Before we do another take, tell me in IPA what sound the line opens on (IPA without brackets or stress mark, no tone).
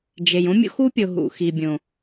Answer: d͡ʒ